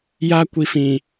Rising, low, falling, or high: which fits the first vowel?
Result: high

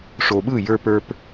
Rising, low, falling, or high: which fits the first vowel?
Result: low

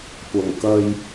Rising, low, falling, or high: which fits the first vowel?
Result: low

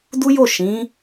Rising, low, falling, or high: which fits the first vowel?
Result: high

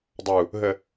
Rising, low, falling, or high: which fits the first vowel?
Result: low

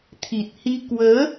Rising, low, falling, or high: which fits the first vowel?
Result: low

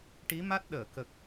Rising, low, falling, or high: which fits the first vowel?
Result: rising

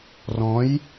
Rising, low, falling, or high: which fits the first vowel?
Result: rising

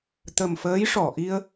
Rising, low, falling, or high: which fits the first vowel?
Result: low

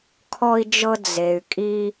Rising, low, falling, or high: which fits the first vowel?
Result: high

